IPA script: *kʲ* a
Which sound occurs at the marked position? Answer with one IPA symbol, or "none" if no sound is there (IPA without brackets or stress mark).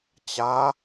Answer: t͡ɕ